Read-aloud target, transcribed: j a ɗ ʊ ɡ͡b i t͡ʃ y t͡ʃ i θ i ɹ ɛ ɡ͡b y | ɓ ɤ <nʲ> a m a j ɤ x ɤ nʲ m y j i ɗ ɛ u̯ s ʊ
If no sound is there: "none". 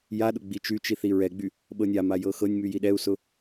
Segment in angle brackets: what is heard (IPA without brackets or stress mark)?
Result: nʲ